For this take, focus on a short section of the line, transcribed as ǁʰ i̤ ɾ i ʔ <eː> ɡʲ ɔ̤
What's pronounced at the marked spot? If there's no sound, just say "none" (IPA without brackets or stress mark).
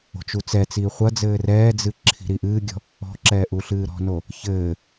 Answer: ɨː